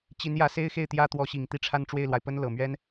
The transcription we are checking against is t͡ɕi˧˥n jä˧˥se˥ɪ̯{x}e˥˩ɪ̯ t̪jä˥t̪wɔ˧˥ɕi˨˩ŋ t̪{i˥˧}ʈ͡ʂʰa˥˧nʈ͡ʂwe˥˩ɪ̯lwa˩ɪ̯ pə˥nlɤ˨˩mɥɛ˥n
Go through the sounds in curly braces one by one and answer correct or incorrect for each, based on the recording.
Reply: correct, correct

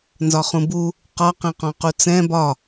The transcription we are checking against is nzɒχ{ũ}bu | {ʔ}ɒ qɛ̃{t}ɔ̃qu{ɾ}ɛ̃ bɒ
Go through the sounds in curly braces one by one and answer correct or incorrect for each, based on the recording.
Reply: correct, incorrect: q, incorrect: q, incorrect: t͡s

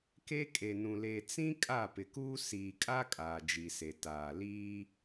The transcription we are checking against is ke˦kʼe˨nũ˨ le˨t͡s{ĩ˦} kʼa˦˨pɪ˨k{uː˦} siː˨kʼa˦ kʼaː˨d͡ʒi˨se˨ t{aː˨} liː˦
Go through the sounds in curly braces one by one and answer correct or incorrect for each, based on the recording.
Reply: correct, correct, correct

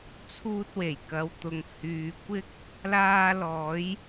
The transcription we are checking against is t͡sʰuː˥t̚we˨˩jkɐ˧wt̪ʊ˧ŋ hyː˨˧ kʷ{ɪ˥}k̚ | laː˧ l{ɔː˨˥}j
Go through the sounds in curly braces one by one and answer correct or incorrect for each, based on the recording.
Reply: correct, correct

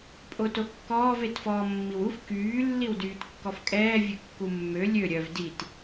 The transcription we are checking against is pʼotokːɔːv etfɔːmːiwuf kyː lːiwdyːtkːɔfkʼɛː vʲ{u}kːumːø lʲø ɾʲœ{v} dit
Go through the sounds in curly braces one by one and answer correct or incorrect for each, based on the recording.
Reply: incorrect: ø, correct

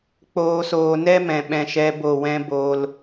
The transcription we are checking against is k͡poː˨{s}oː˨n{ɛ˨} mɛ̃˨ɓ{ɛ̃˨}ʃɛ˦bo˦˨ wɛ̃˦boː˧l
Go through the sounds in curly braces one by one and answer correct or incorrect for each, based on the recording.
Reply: correct, incorrect: ɛ˦, incorrect: ɛ̃˧

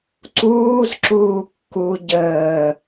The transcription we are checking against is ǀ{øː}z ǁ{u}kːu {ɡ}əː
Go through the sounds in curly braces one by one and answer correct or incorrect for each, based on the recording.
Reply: incorrect: uː, incorrect: uː, incorrect: ɟ

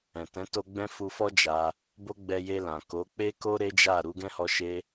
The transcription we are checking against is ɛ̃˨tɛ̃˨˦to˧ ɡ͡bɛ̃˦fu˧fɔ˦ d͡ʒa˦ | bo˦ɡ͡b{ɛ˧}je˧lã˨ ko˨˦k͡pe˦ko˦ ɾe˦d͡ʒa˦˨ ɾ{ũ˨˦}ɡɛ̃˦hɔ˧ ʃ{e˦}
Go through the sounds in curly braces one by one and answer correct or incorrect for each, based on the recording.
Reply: correct, incorrect: u˨˦, correct

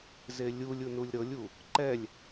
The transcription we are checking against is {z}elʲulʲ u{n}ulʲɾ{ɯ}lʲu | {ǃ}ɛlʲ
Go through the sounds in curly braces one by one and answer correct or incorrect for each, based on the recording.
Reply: correct, correct, incorrect: ɤ, correct

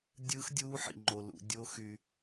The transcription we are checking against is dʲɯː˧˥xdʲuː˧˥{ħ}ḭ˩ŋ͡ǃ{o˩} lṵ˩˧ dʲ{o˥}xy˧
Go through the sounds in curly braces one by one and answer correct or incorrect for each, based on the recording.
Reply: correct, correct, incorrect: o˧˥

